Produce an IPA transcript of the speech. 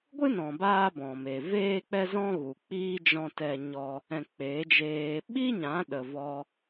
ɡʷ ɨ˦ n ɔ̃˨ b aː˦ b ɔ̃˨ m e˨ v eː˦ k͡p ɛ˦ z ɔ̃˦ ɣ u˨ k͡p iː˦ d͡ʒ ɔ̃˦ t ɛ˦ ɲ ɔ˦ | ɛ̃˧ k͡p e˨˦ d͡ʒ eː˧ ɓ i˦ ɲ ã˨˦ ɗ ə˨ v ɔ˧

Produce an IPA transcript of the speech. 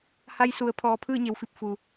h a˧ j s u˩˧ ə̯ pʰ ɔː˩˧ pʰ ɯː˥˨ ɲ e˩˧ w f i˧˩ p̚ f u˩

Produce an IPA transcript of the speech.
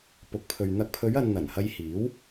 p ʊ˨˥ k̚ pʰ ɵ˨ ɥ n̪ ɐ˨˥ k̚ pʰ ɵ˨˧ ɥ ɐ˨ n n̪ ɐ˨˩ n h ɐ˧ j h iː˨˥ w

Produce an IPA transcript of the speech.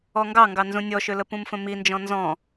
ɔ ŋ ɡ ɑ ŋ ɡ ɑ n z ũ nʲ ɔ ʃ ø l ə p ũ m f ə̃ m i n d͡ʒ ɔ̃ n z ɔ̃

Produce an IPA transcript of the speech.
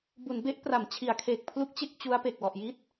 b u˩˦ n b e˦˥ ʔ p r a˩˦ m t͡ɕʰ i˩˦ a̯ kʰ eː˨˩ k̚ pʰ l u˦˥ k̚ t͡ɕ e˥˩ k̚ t͡ɕ u˦˥ a̯ p e˨˩ k̚ w ɔ˨˩ ʔ j i˦˥ t̚

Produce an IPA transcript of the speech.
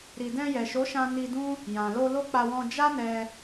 ɾ i˨ d ɛ̃˧ j ɛ˨ ʃ o˨˦ ʃ ã˧ n i˧ d ũ˦ | j ã˨ l o˧ l o˦ k͡p a˧ w ɔ̃˧ d͡ʒ a˦ n ɛ˧

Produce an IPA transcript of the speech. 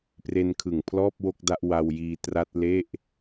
p r e˧ n kʰ ɯ˨˩ ŋ pʰ l ɔː˥˩ p̚ w o˥˩ k̚ d a˥˩ ʔ w a˧ w j iː˧ t r a˦˥ t̚ l e˥˩ ʔ

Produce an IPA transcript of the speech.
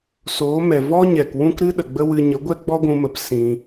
s oː˨˦ m ɛ˨ v ɔ˦ ɲ ɛ˨ k w ũ˦ k ɾ ɨ˦ ɗ ə˨ ɡ͡b ə˦ w ɨ˧ ɲ ə˨˦ ɡʷ ɛ˦ ɡ͡b ɔ˦ ɡʷ ũ˧ m ə˨˦ p s ĩ˧

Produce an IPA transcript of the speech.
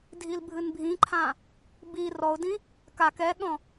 dʱ i l bʱ ɨ n bʱ ĩ ǃʰ ã | b i r ɔ ʊ̯ d ĩ | k a k ɛ ɠ ɔ̃

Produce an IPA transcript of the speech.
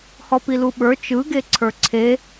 h ɔ p i l u ɓ ə˞ t͡ʃ ɯ ɡ e ǀʰ ə˞ ǀʰ e

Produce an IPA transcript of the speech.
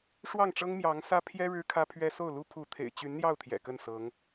ʂ w ɑ˥˩ ŋ ʈ͡ʂ ɤ˥ ŋ m j ɑ˧˥ ŋ s ä˥ pʰ j ɛ˥ ɻ ɻ̩˥ kʰ ä˥ pʰ ɥ ɛ˥ s o˥˩ ʊ̯ l u˥ pʰ u˧˥ t̪ʰ ḛ˨˩ ɪ̯ t͡ɕ y˧˥ n n̪ j ɑ˥˩ ʊ̯ t̪ʰ j ɛ̰˨˩ k ə˥˩ n s ɤ˧˥ ŋ

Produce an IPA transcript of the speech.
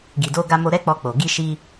ɡ i˨ d o˧ ɡ a˧ m o˧ ɾ ɛ˦ k͡p ɔ˧ k͡p o˨ ɡ i˧ ʃ i˧

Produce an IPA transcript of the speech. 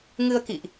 ŋ ɨ˧ ə̯ k ḭ˧˨ ʔ

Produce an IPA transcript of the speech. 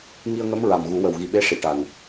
ŋ i˧ ə̯ ŋ ə˧˥ m ɹ a˨˩ m ɣ u˨˩˦ w ə˨˩ w ɣ i˨˩ ɓ e˧˥ ʂ i˨˩˨ ʈ a˨˩ n

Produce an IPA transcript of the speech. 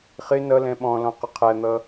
χ ɪ n ʌ l ɛ̃ ɓ ɔ̃ l ɔ̃ q ʊ qʰ æ n̪ ʌ

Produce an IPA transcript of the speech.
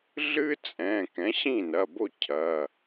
ɮ ɨ˦ t͡sʼ ɛ̃˩˧˩ k ɛ̃˩˥ ɕ ĩ˥˩ n ɐ˩˧˩ b o˥˩ cʰ ɐ˩˧˩

